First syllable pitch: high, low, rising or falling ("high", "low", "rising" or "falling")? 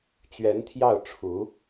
rising